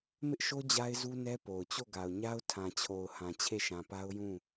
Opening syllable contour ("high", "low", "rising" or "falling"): high